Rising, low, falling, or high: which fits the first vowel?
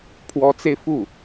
rising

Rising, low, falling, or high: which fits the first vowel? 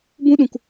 high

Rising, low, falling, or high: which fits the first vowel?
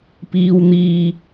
high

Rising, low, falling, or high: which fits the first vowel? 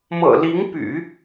low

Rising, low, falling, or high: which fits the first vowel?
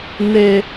high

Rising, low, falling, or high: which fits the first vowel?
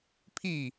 falling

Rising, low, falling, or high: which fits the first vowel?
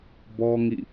high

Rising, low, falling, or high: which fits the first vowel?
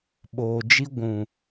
low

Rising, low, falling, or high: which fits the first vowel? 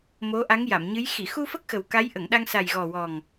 rising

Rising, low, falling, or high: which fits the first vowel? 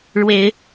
rising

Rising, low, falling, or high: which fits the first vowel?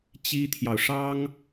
high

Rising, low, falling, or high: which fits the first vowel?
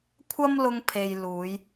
high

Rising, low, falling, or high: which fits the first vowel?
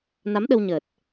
rising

